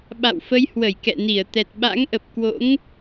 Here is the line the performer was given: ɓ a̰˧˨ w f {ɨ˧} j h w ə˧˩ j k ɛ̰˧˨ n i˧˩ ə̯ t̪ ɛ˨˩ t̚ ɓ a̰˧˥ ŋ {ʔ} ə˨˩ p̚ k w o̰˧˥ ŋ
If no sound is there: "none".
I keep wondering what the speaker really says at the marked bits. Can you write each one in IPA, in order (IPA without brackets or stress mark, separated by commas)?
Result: ə˧, ʔ